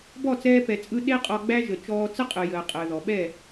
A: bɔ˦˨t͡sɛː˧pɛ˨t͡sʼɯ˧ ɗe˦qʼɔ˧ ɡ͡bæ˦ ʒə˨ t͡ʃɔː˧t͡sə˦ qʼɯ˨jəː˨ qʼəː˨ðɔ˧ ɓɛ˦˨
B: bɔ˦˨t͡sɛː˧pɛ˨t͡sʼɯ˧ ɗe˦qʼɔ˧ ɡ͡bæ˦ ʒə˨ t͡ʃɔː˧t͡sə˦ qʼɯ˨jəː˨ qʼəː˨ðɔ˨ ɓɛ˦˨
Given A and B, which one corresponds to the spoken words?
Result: B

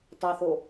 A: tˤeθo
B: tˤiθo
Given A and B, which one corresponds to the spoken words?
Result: A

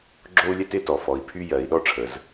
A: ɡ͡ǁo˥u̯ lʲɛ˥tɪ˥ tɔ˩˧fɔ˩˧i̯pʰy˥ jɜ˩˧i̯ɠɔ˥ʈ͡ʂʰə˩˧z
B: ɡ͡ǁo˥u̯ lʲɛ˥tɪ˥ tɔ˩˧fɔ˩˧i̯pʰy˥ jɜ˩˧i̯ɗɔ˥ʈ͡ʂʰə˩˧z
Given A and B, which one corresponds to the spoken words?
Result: B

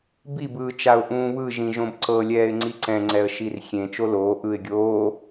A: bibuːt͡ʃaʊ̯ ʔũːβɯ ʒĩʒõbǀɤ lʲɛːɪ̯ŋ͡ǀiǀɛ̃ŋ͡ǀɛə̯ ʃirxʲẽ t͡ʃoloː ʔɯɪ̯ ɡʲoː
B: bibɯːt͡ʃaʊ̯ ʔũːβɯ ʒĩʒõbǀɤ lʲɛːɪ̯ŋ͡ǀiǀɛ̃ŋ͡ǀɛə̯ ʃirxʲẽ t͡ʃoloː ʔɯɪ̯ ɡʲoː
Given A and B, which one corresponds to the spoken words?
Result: B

